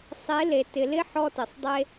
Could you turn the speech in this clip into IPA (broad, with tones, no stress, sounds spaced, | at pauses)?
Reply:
sˤ e˨˦ l e˨ t ɪ˨ l ɪ˦ ħ ɔ˧ t ɪ˨ sˤ dˤ e˧